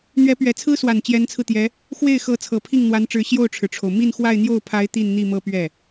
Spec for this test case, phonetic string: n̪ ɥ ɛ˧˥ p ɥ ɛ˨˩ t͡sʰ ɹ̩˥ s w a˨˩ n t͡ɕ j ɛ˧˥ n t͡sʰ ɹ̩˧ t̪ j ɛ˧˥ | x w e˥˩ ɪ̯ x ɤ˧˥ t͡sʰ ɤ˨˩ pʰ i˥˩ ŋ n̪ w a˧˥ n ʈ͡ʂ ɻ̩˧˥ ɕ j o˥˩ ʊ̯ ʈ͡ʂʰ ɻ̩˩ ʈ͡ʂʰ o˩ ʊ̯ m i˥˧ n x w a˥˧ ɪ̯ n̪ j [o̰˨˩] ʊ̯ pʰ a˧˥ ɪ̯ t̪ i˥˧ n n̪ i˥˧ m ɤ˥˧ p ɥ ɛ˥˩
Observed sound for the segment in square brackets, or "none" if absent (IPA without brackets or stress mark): o˥˩